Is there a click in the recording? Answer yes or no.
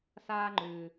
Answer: yes